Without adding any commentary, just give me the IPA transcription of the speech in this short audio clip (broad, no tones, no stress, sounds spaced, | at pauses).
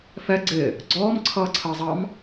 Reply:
f ɛ ɡ͡ǀ ɪ | ɡ͡ǀ ɔː m ǀʰ ʌː ǀʰ əː zˤ ɑ m